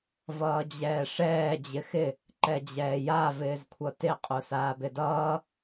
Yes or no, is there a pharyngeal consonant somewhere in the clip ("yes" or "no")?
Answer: no